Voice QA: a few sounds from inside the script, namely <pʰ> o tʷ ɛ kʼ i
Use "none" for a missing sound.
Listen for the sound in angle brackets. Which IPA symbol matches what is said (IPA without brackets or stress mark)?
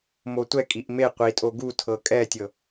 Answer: m